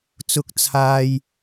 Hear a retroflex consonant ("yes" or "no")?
no